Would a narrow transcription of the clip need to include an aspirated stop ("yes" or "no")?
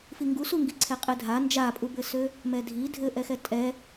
yes